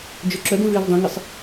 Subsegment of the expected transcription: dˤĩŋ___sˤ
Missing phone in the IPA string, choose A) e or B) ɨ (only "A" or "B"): B